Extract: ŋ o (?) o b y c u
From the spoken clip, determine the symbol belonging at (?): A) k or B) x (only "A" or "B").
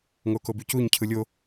A